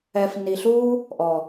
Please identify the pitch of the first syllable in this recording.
low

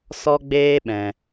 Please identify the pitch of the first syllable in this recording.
high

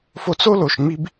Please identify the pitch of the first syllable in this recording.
high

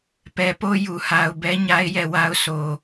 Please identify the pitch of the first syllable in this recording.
low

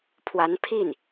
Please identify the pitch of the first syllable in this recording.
rising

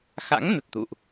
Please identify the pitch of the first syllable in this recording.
rising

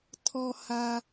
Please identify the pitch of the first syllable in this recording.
low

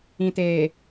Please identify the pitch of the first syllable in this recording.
low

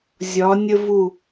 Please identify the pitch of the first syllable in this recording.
rising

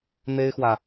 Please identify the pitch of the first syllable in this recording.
high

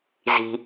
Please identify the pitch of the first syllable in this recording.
low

